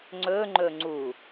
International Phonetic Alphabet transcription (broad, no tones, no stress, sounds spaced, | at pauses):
ŋ͡ǀ ɵ ŋ͡ǃ ɵ ŋ͡ǀ u